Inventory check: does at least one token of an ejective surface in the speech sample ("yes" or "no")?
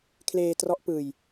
no